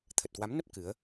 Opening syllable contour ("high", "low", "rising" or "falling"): low